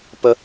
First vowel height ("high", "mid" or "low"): mid